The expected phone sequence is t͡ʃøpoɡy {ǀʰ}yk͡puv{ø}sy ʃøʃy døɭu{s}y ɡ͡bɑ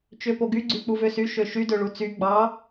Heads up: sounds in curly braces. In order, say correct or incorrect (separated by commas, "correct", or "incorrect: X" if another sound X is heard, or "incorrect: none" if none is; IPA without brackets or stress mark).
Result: incorrect: ɡ͡ǀ, correct, incorrect: t͡s